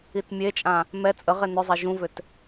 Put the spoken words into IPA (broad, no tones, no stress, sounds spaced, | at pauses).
i t mʲ e t͡ʃʼ ã | m ɛ t͡sʼ ə ʁ e n ʏ zˤ e ʒ ũ v ʏ t